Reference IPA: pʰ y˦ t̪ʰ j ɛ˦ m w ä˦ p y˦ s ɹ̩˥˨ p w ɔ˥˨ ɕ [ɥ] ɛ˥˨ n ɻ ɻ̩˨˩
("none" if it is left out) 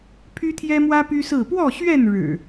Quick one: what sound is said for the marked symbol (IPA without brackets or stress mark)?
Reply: ɥ